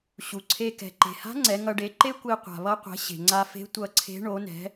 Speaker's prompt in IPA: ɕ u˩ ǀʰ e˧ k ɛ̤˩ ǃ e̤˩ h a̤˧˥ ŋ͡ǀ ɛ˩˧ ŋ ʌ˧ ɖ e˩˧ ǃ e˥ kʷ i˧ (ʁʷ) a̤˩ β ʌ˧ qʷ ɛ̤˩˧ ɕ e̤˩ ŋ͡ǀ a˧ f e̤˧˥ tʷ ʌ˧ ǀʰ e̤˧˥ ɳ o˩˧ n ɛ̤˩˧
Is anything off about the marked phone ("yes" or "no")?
yes